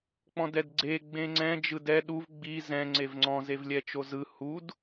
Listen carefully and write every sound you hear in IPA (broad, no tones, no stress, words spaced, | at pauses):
k͡pɔ̃dɛdɡ͡ǀe ɡ͡bẽŋ͡ǀɛ̃ d͡ʒɯdɛ ɗuv ɡ͡bi zɛ̃ ŋ͡ǀevŋ͡ǀɔ̃ zevlʲɛt͡ʃozɯ hud